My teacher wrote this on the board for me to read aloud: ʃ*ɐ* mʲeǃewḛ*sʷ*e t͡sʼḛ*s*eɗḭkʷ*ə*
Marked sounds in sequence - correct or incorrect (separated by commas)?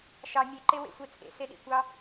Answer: incorrect, correct, correct, incorrect